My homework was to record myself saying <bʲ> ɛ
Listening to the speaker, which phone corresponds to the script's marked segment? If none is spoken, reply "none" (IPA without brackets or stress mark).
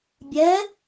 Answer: bʲ